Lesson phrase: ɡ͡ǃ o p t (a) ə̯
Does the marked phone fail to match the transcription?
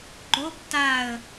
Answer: no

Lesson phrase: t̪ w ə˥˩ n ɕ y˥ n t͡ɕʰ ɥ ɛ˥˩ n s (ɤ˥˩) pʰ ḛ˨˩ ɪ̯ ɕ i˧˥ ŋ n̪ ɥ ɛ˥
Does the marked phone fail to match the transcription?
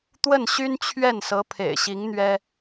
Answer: yes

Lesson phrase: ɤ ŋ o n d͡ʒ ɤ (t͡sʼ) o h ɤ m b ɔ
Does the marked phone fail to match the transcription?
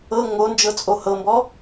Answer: no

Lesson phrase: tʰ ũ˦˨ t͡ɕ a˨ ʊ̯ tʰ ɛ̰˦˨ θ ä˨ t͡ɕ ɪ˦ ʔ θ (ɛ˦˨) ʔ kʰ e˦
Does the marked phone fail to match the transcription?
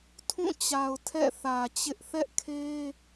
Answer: yes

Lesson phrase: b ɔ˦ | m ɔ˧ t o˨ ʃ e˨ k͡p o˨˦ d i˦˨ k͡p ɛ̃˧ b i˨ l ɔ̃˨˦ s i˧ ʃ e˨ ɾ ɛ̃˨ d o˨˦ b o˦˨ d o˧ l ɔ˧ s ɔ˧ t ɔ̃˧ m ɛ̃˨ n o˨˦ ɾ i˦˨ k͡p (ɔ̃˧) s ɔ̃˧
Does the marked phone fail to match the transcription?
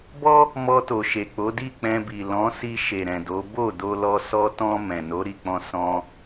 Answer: no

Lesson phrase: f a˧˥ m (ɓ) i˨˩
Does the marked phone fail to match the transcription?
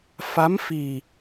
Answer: yes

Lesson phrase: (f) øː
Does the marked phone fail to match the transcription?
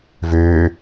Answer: yes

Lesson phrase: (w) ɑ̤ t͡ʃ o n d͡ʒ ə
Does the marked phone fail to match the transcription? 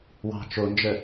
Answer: no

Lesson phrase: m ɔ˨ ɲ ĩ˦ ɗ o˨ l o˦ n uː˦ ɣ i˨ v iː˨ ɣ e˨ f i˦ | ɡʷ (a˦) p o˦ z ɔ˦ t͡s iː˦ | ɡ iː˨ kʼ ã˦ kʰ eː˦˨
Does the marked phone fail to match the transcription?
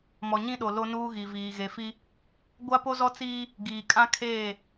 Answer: no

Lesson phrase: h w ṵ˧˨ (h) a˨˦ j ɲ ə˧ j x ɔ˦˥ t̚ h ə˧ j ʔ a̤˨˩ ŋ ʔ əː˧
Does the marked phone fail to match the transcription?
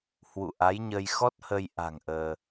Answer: yes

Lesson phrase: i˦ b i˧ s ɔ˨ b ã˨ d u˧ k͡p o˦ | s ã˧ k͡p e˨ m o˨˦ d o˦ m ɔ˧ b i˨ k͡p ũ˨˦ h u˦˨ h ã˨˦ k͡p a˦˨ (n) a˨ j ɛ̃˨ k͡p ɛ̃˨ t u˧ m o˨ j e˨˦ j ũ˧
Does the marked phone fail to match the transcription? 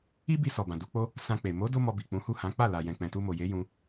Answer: yes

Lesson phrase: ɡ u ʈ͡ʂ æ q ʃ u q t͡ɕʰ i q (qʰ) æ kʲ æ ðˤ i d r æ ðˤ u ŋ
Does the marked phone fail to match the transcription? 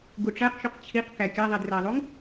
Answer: yes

